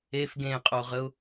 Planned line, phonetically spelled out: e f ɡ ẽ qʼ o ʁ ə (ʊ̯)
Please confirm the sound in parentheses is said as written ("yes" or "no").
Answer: yes